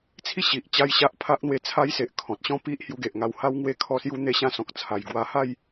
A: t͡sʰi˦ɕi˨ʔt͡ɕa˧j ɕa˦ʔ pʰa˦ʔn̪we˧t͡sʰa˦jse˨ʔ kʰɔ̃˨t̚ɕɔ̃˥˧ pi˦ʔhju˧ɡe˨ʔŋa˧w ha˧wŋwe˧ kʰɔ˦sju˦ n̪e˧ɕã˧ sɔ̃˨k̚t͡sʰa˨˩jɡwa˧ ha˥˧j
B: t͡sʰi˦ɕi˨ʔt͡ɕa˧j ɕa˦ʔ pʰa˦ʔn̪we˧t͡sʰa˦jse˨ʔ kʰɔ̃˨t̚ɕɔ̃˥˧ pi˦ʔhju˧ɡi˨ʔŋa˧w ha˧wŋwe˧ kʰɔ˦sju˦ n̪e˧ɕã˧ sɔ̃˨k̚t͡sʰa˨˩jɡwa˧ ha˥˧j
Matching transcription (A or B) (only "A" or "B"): A